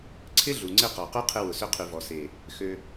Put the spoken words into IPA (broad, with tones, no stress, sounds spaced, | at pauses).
ǀʰ ɪ˦ ɮ u˨ ŋ͡ǀ ɪ˦˨ q ɔ˨ q u˦ qʰ ɪ˧ w ʊ˨ s ʏ˧ qʰ y˨ v ɔ˨ s e˨ | x ø˧